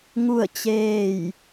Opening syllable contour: falling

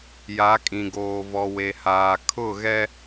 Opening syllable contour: rising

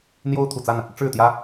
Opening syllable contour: high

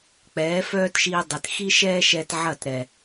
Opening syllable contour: rising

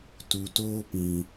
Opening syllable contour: low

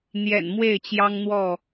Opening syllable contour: low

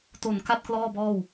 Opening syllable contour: low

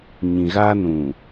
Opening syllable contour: low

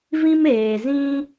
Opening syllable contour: high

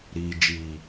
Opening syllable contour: low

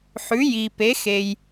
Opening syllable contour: rising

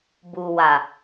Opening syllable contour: low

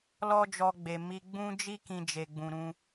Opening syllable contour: high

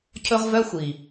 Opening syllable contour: high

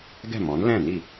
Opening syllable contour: falling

